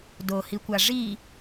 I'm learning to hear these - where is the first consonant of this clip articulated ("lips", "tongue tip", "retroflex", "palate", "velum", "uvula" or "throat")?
tongue tip